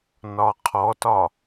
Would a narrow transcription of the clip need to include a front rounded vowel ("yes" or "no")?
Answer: no